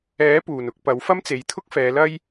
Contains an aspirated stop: yes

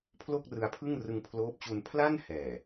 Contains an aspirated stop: yes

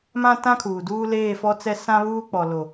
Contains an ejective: no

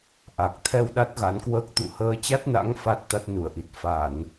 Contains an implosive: yes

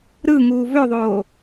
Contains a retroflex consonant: no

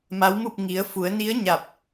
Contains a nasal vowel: no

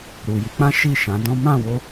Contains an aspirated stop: no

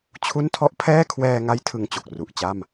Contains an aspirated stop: yes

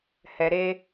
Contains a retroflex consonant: no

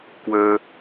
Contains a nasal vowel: no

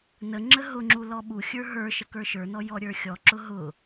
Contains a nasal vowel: no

